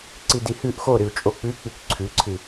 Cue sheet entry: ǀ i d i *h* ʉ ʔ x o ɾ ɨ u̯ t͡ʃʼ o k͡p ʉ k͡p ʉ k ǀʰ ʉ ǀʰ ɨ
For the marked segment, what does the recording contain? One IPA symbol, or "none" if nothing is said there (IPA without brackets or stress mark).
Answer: h